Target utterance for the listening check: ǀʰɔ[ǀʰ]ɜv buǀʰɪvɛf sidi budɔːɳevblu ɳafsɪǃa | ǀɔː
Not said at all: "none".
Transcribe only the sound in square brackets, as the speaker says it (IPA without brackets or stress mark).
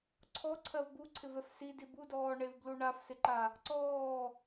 ǀʰ